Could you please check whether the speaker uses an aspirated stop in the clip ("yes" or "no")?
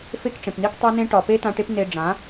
no